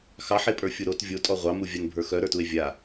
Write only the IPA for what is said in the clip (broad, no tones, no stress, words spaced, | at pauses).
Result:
xɑħepʼə˞ fʲuɾot vʲotʼɔ ʁʷɑmuvʲan bʱə˞xœɾə˞tue̯ vʲa